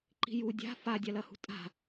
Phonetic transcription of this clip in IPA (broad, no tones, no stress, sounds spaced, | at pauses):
ǃ i̤ j u dʲ a̤ f a dʲ a l ɐ h ṳ tʼ a̤